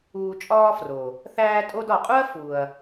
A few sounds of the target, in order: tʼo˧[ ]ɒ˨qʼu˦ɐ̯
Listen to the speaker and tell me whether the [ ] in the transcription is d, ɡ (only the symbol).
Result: d